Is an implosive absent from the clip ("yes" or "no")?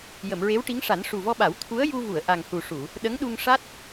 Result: no